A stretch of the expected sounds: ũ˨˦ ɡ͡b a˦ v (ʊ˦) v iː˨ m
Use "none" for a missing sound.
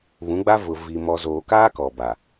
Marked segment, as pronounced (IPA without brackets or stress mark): ʊ˨